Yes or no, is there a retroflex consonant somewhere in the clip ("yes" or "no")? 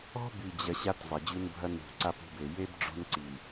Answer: yes